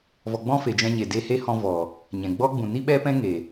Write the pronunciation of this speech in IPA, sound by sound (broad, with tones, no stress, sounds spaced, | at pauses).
v ɔ˨ ɡ͡b ɔ̃˧ f e˨ d͡ʒ ɛ̃˧ ɲ e˨ d e˧ h e˦ h ɔ̃˧ v ɔ˨ | ɲ ɛ̃˨ ɡ͡b ɔ˦ ɡ͡b ũ˨ n i˦ ɓ ɛ˦ p ɛ̃˦ ŋ e˨